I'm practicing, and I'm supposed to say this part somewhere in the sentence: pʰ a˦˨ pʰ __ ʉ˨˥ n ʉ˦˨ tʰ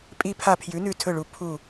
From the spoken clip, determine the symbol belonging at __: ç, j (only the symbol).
j